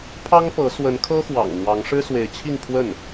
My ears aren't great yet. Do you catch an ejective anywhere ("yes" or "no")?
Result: no